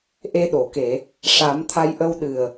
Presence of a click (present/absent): absent